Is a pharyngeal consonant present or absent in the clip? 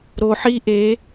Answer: present